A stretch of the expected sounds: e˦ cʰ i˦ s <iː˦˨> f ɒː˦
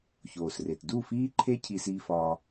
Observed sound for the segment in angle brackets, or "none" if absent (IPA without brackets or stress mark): iː˦